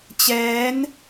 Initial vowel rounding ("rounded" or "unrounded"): unrounded